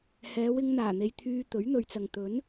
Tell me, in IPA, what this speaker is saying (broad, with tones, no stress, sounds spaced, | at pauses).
h ɛː˨˧ w ɪ˧ ŋ n̪ aː˨˩ n̪ e˨ j t̪ʰ yː˧ t̪ ɵ˨˥ ɥ n̪ ɵ˨ ɥ t͡s ɐ˨ ŋ t̪ ɵ˨˥ n